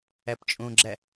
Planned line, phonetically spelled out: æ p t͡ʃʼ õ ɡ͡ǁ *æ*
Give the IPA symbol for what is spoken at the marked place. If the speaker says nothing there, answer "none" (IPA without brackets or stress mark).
æ